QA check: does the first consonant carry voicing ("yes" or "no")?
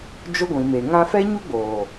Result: yes